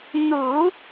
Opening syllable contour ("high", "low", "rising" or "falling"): low